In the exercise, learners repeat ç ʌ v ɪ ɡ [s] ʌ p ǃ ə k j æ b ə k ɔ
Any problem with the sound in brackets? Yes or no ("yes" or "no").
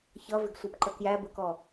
yes